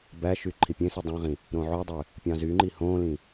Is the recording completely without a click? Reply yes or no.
no